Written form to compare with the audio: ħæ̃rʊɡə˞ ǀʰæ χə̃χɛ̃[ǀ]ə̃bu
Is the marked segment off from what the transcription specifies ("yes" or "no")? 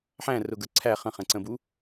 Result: no